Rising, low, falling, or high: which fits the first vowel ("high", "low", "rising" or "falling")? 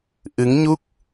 rising